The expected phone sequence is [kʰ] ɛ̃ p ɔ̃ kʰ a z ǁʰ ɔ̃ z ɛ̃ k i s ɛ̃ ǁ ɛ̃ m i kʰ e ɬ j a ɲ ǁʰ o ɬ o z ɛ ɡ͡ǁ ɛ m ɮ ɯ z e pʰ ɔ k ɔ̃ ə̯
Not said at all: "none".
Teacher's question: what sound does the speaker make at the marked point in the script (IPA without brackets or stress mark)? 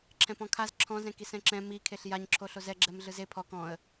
ǁʰ